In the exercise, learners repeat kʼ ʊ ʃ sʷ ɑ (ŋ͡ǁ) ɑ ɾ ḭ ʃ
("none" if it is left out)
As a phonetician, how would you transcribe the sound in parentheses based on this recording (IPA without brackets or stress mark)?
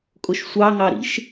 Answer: ŋ